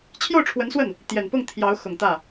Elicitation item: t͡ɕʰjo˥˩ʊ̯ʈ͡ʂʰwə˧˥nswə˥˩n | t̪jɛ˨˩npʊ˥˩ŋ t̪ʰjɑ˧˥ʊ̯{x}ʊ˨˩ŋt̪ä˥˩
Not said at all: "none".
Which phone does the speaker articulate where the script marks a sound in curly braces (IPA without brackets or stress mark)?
x